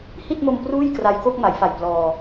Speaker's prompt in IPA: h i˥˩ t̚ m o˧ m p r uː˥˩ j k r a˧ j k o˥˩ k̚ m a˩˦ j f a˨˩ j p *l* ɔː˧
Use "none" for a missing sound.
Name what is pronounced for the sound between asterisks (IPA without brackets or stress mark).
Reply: l